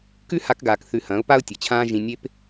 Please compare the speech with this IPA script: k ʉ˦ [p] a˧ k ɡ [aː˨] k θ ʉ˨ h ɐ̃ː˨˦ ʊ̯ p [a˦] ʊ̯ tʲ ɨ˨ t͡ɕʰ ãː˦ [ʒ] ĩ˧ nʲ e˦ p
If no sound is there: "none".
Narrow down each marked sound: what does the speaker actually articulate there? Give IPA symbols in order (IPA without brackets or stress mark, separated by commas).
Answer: h, aː˨, a˦, ʒ